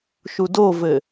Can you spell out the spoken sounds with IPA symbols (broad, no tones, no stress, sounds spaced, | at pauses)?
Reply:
ʃ u d o v ɘ